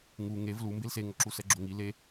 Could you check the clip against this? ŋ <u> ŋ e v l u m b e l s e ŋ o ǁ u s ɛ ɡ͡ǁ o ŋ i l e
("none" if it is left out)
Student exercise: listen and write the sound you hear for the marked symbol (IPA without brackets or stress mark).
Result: u